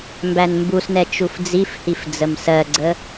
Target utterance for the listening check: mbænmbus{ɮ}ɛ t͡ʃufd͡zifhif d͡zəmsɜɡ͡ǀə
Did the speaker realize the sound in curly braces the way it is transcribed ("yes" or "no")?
no